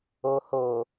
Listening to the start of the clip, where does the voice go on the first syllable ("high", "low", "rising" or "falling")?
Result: low